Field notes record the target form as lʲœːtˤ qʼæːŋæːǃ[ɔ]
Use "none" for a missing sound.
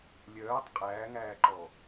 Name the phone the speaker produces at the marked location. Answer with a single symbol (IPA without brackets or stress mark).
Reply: ɔ